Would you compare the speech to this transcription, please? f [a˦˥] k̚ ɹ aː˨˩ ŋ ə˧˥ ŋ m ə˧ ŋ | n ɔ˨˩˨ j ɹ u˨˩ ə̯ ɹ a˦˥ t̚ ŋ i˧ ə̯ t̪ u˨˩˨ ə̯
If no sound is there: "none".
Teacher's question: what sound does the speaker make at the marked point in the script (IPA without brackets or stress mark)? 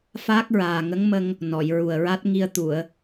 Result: aː˦˥